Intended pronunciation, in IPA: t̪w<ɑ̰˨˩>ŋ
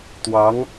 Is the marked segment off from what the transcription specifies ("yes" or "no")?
yes